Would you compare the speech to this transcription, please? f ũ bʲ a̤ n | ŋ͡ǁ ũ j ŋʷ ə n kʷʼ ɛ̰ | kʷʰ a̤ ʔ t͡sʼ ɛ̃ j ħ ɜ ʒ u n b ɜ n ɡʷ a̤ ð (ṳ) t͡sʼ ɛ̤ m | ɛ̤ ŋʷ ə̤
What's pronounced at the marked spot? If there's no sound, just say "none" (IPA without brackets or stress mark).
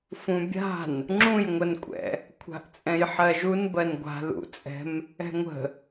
ṵ